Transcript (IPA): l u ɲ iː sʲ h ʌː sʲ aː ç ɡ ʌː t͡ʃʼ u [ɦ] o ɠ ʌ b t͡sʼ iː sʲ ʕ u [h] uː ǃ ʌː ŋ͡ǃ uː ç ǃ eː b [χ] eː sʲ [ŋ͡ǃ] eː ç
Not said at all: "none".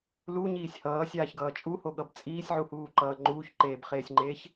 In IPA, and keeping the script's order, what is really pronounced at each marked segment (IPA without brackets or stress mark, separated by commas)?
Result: h, h, χ, ŋ͡ǃ